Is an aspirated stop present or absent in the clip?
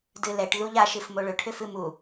present